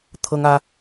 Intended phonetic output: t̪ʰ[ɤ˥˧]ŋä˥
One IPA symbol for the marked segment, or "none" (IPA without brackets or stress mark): ɤ˥